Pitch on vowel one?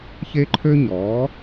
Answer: high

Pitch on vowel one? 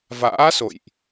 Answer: rising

